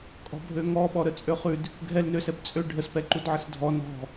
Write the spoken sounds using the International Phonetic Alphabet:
kʼ ɔ̤ bʱ ø ŋ ɔ ɓ ɔ ɾ ə t͡sʼ ø χ ʉ d | ɡʱ ɛ l n ø s ɛ b t͡sʼ ø ɖʱ ə s p ɛ ǃ u d ʕ ə s dʱ ɔ n ɔ̤

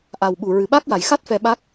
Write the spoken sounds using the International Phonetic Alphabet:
ʔ a˨˩ w ɓ u˨˩ ɹ ɨ˨˩ ɓ a˦˥ k̚ w a˨˩ j x a˦˥ t̚ f ɛ˧ ɓ a˦˥ k̚

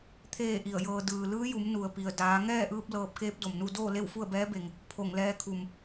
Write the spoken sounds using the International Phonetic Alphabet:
t̪ʰ eː˥˨ ʔ i˧˩ ə̯ j ɤː˧ d ɯː˩ l ɯː˧˥ j u˩˧ m n u˩ ə̯ p i˩ ə̯ d aː˩˧ ŋ ɛː˥˨ ʔ ɯː˧ p̚ l ɤː˧˩ p̚ k eː˧˥ p̚ d o˩ m n u˥˨ d oː˥˨ l e˥˨ w f u˥˨ ə̯ b ɛː˧˥ b e˩ ŋ | pʰ o˧˩ ŋ l ɛː˧ kʰ u˩ m

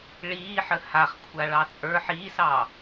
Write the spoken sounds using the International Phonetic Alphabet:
ɭ iː ħ ə h a χ kʷʰ a ɭ ɑ t͡sʼ ə˞ ħ iː s ɑː

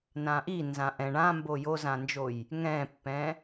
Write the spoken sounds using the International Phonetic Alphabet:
n ã ʔ i n z ã ʔ ɛ̃ ɳ ã m b o j o z ã n d͡ʒ o j | ŋ ɛ̃ pː ɛ̃

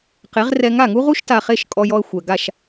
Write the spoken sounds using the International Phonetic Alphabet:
q e˩˥ ʁ r ɛ˧ ŋ a˥˩ ŋ u˥ ʁ u˥ ʃ t a˧ χ e˥˩ ʃ kʼ ɔ˧ j ɔ˧ ə̯ xʷ ɛ˩ ɡ a˥˩ ʃ

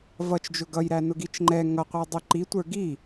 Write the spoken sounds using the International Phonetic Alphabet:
v ʌ t͡ʃ d͡ʒ ʊ ɡ ʌ j ɾ æ n ʊ ɡ i t͡ʃ ŋ͡ǃ ɛ ŋ ʌ qʷ æ dˤ ʊ ǃ i tʷ ə˞ ɡ i

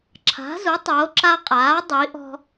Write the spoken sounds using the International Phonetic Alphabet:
ǁʰ a̤˩˥ z u˩˥ tˤ oː˩˥ ǁ a˦ qʼ aː˩˥ dˤ i˩˥ ʔ ɔ̤˦

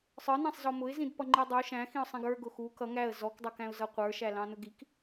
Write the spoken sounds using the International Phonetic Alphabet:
sˤ ə˞ n æ̃ sˤ z ɔ m ʊ ɪ̯ z ĩ d p ʌ ŋ͡ǃ i dˤ u ʃ æ̃ x ĩ ʊ̯ sˤ ĩ ɡ ə˞ ɡ ʊ x u k ʌ ŋ æ ə̯ z ɔ k dˤ ə˞ k æ̃ ʊ̯ z ʌ qʷ ə˞ ʃ æ l ɑ̃ n ʊ ɡ i k

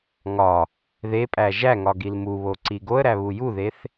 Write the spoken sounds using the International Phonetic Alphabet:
ŋ ɒ | ð e pʼ æ ʒ æ ŋ ɒ ɡ i l m u β o ǀ i ɡ o ə̯ ɾ æ β u j u ð e θ

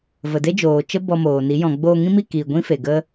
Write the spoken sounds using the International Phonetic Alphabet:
v ə˨ d e˦ d͡ʒ oː˨ t͡ʃ ə˦ b ɔ˧ m oː˨ n i˨˦ j ɔ̃˨ ɡ͡b oː˧ ŋ ĩ˦ m i˦˨ k iː˨ ɡʷ ĩ˦ f e˨ ɡ ə˦

